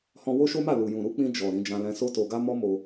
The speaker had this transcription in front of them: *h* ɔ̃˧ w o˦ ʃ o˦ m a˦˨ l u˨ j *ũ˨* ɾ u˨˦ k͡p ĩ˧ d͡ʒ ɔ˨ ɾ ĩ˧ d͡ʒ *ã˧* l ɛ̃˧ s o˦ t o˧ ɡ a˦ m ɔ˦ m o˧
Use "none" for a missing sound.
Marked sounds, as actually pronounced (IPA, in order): h, ũ˨, ã˧

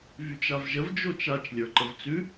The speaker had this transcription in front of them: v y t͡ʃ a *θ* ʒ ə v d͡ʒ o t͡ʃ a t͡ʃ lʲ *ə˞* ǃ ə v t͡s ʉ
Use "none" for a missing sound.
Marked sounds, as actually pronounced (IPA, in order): v, ə˞

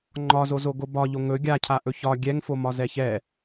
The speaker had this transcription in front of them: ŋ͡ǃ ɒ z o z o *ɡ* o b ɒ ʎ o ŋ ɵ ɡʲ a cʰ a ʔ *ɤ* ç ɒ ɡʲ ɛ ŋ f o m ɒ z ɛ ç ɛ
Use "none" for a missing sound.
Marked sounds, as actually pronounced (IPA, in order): ɡ, ɵ

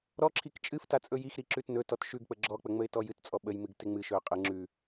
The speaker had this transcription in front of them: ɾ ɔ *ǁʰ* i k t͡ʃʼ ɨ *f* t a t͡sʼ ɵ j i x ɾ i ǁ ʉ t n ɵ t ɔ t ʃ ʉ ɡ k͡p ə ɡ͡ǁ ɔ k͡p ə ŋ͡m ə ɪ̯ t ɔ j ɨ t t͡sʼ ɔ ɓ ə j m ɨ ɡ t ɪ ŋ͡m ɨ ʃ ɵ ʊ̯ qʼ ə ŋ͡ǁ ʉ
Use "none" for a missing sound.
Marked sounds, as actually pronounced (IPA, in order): ǁʰ, f

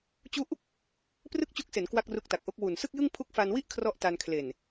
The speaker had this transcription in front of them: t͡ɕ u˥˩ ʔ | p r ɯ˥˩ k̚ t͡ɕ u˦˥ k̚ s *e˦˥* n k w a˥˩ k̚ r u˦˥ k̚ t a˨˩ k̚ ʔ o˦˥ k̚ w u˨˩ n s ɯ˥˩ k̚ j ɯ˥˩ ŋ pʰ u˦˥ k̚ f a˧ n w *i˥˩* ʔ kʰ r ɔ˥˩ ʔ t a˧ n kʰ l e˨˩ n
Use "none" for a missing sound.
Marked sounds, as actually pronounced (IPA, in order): e˩˦, i˥˩

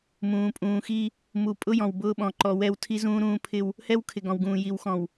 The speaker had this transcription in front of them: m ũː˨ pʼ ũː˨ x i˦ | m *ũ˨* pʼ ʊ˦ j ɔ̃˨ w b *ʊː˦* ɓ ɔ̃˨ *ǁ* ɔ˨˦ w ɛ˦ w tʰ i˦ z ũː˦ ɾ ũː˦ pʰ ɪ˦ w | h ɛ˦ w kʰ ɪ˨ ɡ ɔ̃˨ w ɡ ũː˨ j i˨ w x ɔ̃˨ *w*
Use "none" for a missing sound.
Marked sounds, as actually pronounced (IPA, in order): u˨, ʊː˦, ǃ, w

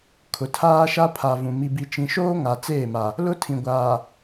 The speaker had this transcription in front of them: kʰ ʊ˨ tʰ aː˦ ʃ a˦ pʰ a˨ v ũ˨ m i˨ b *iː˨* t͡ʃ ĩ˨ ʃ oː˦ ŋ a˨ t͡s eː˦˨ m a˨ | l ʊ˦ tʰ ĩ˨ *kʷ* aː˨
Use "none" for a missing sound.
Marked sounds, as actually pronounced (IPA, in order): i˨, ɡʷ

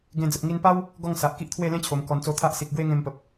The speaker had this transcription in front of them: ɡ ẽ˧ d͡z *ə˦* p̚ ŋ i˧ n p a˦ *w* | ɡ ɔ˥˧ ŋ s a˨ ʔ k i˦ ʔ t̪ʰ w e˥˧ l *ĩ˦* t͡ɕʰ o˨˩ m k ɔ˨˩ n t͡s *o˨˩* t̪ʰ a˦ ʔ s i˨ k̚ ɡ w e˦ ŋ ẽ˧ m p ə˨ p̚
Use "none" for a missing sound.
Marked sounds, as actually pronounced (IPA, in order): ə˨, w, ẽ˦, o˧

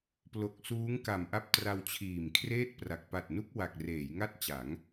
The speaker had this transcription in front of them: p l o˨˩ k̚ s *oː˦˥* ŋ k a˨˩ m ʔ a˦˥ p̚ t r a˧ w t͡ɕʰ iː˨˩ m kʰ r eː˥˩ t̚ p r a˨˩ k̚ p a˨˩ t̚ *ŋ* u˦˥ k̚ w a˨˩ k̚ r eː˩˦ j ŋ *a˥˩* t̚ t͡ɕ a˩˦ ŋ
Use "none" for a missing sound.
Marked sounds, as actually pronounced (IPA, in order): uː˦˥, n, a˥˩

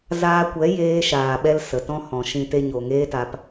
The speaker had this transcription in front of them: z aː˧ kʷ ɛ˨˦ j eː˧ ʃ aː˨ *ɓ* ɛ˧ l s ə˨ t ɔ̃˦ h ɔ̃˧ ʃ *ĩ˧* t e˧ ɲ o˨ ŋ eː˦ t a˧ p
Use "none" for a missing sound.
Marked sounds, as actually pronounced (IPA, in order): ɓ, ĩ˦

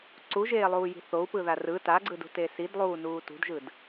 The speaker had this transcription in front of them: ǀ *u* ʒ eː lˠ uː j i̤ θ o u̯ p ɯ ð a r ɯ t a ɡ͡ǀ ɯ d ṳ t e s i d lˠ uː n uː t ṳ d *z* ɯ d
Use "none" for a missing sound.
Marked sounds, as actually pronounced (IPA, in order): u, ʒ

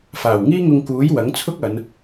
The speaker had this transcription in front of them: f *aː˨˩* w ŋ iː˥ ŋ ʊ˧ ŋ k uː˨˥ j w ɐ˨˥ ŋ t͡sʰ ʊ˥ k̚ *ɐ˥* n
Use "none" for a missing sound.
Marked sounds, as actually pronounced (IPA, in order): aː˨˩, ɐ˨˧

